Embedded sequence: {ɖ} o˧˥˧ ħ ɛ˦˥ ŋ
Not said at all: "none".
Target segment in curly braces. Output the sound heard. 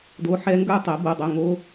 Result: d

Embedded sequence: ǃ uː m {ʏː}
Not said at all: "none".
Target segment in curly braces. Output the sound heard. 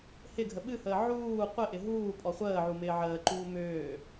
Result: ʏː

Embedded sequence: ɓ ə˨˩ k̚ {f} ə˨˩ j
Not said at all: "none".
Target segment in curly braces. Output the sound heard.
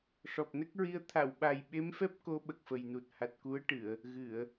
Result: f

